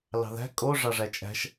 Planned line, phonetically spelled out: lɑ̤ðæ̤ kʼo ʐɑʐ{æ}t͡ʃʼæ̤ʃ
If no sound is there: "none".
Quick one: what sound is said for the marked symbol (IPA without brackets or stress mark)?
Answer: æ